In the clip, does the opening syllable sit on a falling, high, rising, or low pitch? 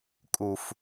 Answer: high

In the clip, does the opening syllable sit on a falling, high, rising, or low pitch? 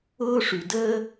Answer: high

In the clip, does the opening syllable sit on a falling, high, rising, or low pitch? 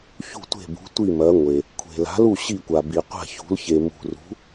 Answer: falling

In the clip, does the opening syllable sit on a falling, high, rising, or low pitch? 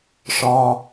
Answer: high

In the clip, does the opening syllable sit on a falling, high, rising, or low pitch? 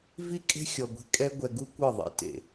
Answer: falling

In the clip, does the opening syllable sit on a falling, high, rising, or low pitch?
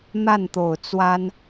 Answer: falling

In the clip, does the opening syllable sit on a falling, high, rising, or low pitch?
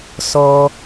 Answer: high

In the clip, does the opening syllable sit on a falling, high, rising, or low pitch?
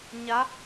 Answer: rising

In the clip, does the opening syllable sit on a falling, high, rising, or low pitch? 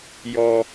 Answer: low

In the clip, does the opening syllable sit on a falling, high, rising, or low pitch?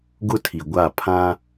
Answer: high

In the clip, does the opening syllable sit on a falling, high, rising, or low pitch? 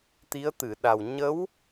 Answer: rising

